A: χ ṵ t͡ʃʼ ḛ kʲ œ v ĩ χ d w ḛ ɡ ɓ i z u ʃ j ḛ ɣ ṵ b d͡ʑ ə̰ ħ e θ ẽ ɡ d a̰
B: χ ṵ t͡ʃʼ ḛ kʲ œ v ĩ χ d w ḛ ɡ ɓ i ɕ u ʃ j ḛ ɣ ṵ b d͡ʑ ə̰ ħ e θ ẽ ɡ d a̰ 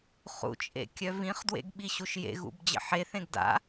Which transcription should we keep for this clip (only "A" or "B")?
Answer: B